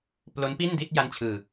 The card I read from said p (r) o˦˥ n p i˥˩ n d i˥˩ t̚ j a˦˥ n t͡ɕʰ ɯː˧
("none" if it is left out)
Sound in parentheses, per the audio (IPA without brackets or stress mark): l